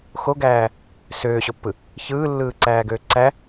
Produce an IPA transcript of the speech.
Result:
x o ɡ æː | s øː ɕ o pː ɯ | ç ɯː lː ɯː ǀ æː ɡ øː ǀ æ

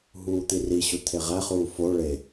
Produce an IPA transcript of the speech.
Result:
ɦ uː t̪ i r i ɕ u t̪ʰ e ʁ æ χ uː f o ɭ e

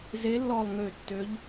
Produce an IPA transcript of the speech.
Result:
z e˨˦ lː ɔ˨˩ lˠ ŋ ø˨˩ tː ø˨˦ ʎ

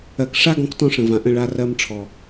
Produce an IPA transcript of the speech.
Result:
ɜ˨ k ʂ a˦ ɡ ɔ̃˧ k t ɔ̃˦ ʂ ə̃˨ v ã˨ ʔ ə̃˦˨ ɭ a˦ r ɜ˦ m ʈ͡ʂʰ ɔ˨

